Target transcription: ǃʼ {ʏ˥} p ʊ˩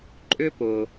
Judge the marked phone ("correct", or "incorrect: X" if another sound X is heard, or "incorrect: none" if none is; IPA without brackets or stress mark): correct